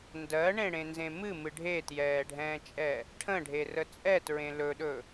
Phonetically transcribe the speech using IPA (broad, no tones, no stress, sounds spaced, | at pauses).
n d ɜ ɳ ẽ ɽ ẽ n z ẽ m ɨ m ɨ ɖʱ e t j ɛː ɖʱ ɛ̃ː t͡ʃʼ ɛ | ʈʰ ə̃ ɖʱ e r ə t͡sʼ ɛ t ɹ ẽ l ɵ ɗ ɵ